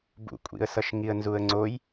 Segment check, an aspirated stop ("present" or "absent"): absent